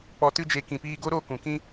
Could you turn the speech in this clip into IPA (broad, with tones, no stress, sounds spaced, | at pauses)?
k͡p ɔ˧ t ɨ˦ d͡ʒ e˧ k ĩ˨ p iː˧ ɡ o˦ ɾ o˦˨ k ũ˨ k ĩ˦